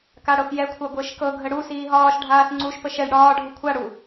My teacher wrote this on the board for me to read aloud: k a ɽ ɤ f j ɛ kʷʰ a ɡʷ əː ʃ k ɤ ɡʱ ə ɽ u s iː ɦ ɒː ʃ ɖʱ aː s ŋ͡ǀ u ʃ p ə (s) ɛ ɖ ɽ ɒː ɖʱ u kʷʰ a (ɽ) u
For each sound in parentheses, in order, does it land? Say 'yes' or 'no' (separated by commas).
no, yes